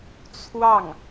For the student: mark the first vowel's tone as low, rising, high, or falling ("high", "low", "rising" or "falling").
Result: falling